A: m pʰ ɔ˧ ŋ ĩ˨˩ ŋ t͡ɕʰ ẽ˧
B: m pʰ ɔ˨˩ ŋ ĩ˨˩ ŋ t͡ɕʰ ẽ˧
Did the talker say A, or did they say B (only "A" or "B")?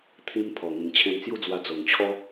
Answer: B